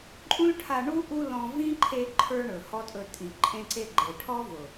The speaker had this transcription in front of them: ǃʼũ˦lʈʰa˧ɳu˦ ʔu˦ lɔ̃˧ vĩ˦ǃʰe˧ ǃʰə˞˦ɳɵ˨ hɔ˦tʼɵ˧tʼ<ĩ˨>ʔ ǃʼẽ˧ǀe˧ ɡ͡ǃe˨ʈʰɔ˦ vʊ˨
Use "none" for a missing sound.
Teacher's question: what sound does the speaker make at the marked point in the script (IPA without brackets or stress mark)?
ĩ˨